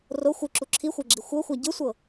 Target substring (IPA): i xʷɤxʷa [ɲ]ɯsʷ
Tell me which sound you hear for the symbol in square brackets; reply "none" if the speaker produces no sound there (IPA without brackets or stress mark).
ɟ